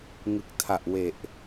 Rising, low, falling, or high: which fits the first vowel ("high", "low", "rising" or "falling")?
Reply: low